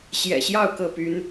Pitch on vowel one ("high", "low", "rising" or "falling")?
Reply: low